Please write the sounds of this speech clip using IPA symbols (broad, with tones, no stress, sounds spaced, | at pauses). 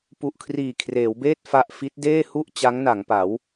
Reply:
p u˨˩ ʔ kʰ r iː˨˩ kʰ r eː˩˦ w b eː˥˩ t̚ f a˥˩ ʔ f i˦˥ t̚ d eː˥˩ h u˥˩ ʔ t͡ɕ a˦˥ ŋ n a˩˦ ŋ p a˩˦ w